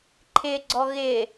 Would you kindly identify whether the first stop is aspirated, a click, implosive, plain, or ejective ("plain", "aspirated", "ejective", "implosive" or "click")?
click